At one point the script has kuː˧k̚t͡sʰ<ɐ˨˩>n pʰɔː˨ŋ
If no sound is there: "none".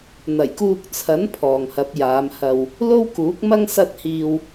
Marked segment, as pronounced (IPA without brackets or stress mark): ɐ˨˥